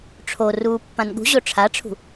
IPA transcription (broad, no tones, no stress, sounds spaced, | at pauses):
ʈ͡ʂʰ o r uː pː ã n ɠ ṳ ʑ o ʈ͡ʂʰ a ʈ͡ʂʰ ṳ